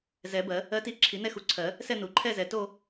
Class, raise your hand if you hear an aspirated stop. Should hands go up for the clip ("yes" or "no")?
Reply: yes